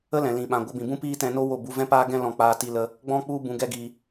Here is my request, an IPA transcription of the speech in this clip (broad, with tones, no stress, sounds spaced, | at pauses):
ə˦ l ɛ̃˨ l ĩ˨ ɓ ã˨ ɡʷ ə˧ b ĩ˨ b ũ˦ p iː˦ t ɛ̃˧ n o˦ w o˦˨ b u˧ v ɛ̃˦ p aː˦ ɡ ɛ̃˦ l ɔ̃˧ k͡p aː˧ t i˧ l ə˧ | ɡ͡b ɔ̃˦ k͡p u˦ b ũ˧ ɡ ɛ˦ ɡ iː˧